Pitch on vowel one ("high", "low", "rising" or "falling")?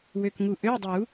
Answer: low